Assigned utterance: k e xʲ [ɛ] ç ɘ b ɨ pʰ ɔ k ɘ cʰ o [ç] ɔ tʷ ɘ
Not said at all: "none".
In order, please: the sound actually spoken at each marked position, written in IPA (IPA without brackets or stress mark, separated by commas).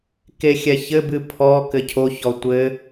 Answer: ɛ, ç